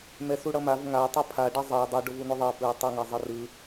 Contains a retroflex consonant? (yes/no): yes